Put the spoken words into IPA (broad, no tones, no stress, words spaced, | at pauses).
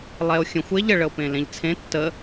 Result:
lˠɛo̯xʲə̃xʷ eʎ əɭəo̯pẽ lẽʎt͡sʰẽ tːə